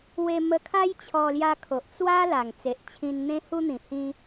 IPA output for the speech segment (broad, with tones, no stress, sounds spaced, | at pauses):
w e˧ m ə˧ kʰ a˦ j t͡ɕʰ ɔ˧ l j a˧ kʰ o˨ ʔ t͡s w a˦ l a˨˩ ŋ t͡s e˨ ʔ t͡ɕʰ ĩ˧ n n̪ ẽ˧ h u˧ n̪ ĩ˨˩ h ĩ˦